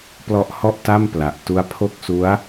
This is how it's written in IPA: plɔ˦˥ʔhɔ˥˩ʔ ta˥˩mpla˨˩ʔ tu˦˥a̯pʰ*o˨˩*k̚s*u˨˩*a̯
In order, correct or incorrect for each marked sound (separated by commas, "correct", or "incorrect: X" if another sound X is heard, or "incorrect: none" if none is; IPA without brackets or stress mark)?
incorrect: o˥˩, incorrect: u˦˥